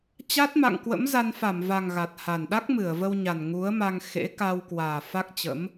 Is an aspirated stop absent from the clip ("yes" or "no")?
yes